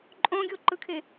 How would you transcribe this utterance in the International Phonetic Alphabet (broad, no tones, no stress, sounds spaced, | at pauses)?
ǃʼ õ ɡʲ o ǃ ɯ kʰ e